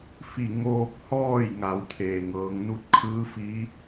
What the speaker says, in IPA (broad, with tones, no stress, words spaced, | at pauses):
fi˧˩ŋoː˧k̚hɔː˥˨j ŋa˩˧wt̪ʰeː˩ŋɤː˩˧ŋ nu˧t̚kʰɯː˧˥ fi˧˥